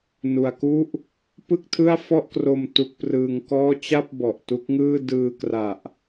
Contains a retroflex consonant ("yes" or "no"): no